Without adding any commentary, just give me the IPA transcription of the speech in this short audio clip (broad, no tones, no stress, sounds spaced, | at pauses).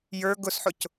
j ə˞ ɡ ʊ s ħ ʊ c